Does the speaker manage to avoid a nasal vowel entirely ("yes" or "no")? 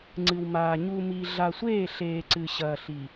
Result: yes